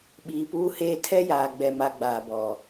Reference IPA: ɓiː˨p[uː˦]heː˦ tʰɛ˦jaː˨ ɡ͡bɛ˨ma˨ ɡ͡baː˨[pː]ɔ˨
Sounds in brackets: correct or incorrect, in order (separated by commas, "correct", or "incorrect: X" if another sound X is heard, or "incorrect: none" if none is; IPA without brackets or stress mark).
correct, incorrect: b